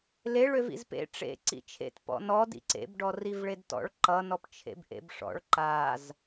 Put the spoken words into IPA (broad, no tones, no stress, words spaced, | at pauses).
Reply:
leɭøv ḭzpḛ ʈ͡ʂḛ ǀḭt͡ʃʰḛt pɔ̰nɔ dḭǀḛbɖɔ rivɭedtɔ̰ɭ ǃʌnɔp t͡ʃʰḛbʔḛbʂɔ̰ɭ ǃaz